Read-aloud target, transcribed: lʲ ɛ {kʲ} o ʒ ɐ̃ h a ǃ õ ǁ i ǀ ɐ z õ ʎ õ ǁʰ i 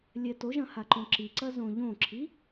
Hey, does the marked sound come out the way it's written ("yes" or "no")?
no